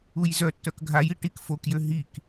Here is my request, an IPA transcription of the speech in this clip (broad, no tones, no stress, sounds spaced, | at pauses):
u j z œ tː œ k ɡʱ a j i ʈ i k f o k j ø ɦ i k